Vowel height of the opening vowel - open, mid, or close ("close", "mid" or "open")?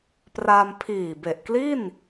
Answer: open